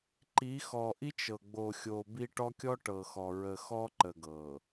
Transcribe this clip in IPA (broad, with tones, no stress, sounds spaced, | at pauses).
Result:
ǃ i˨˦ x ɔ˨ ʔ i˦ t͡ʃ ɤ˨ ɡ͡b o˨ xʲ o˨ b i˦ ʈ ɔ˦ kʲ ɔ˦ ʈ ɤ˨ x ɔ˨ ɹ ə˨ x ɔ˦ ǃ ə˨ ɡ ɤ˨